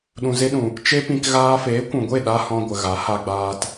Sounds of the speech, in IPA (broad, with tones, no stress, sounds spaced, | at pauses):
ɗ ũ˨ z e˧ ɗ ũ˨ | t͡ʃ e˦ p ĩ˧ k ɣ aː˧ f eː˨˦ kʷ ũ˨ ɡʷ e˦˨ ɗ a˦ h ɔ̃˧ ɡʷ ə˨ ɣ a˨˦ h a˧ ɡ͡b aː˧ t